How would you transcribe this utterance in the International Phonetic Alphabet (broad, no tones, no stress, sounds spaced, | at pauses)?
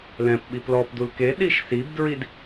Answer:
l ɛ̃ p ɓ i p l ɔ p d u l k e ɗ i ʃ s i b d ɹ i d